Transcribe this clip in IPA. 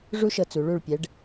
ʐ u˥ ʃ ɤ˧ t͡s u˩˧ ɭ u˧˩ ɭ pʲ ɛ˩˧ ɖ

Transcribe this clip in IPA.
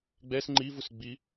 ɡ͡b ɛ s ŋ͡ǃ i v u s ɡ͡b i

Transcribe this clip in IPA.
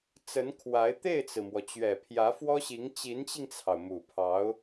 t͡s ə˧˥ n kʰ w a˧˥ ɪ̯ t̪ e˥˩ ɪ̯ t͡s ɹ̩˩ m w ɔ˩ t͡ɕ ɥ ɛ˨˩ pʰ j ä˧˥ f w ɔ˥ ɕ i˧˥ ŋ t͡ɕ i˧˥ n t͡ɕ i˧ ŋ t͡sʰ ɑ˩ ʊ̯ m u˨˩ pʰ ɑ˧˥ ʊ̯

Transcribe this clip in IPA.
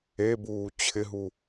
e b uː t͡ɕʰ ɪ ɦ u

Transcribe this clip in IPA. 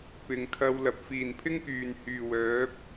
p ɪ˨ ŋ kʰ ɐ˧ w l ɐ˨ p̚ f iː˨˩ n pʰ ɪ˥ ŋ k yː˨˩ n h yː˨˩ w œː˨˥ p̚

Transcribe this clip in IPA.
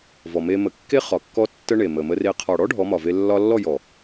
v ɔ˨ m e˧ m ə˨ kː e˦ χ ɒ˨ kː ɔ˦ tː ə˦ ɳ e˨ m ə˨ m ə˧ r e˧ qʰ ɒ˨ ɽ ɔ˦ ɖʱ ɔ˨˦ m ɒ˨ v e˧ lː ɒ˧ lː ɔ˦˨ j ɔ˨

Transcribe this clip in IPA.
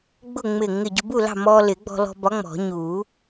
ɡ͡b ʊ˥˨ ŋ͡m ɪ˧˩ ŋ ɪ˧˩ ɟ ʊ˧ b u˥˨ l ɑ̤˥˨ m ɔː˧ l ɪ˨˩˦ ɡ͡b ɔ̤˧ l ɔ̤˧ b ɒ˨˥ ŋ͡m ɔ̤˨˩˦ ɲ uː˨˩˦

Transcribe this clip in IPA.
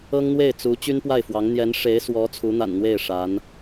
ɤ˥ ŋ n̪ w e˥˩ ɪ̯ t͡s u˧˥ t͡ɕ y˥ n p w a˥˩ ɪ̯ f w ɑ˧˥ ŋ n̪ j ɛ˧˥ n ʂ e˧˥ ɪ̯ s w ɔ˧˥ t͡sʰ u˧˥ n̪ a̰˨˩ n n̪ w e˥˩ ɪ̯ ʂ a˧˥ n

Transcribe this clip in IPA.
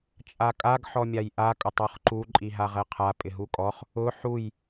t͡ʃʼ a kʼ a ɡ ħ ɔ mʲ a j ʔ a kʼ ʊ tˤ ɔ χ ǃ u ǃʼ i ɦ a ʁ ɛ qʰ a pʼ ɪ ɦ u kʼ ɔ χ | ʊ ħ u j

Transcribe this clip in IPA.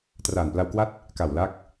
t r aː˨˩ n p l a˧ w k w a˦˥ t̚ | k a˨˩ w l a˦˥ k̚

